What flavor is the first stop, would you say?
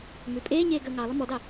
ejective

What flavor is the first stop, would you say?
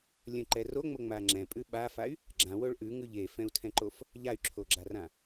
click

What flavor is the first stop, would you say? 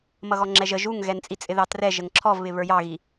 click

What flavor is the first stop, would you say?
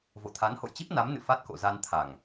aspirated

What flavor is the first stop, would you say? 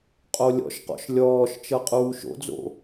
ejective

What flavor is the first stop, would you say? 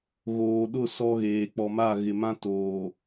implosive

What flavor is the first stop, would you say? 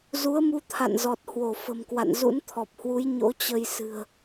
aspirated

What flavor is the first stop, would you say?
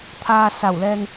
aspirated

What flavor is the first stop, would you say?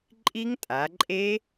click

